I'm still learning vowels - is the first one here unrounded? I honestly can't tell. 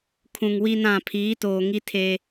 no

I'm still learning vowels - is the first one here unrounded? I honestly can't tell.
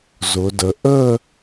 no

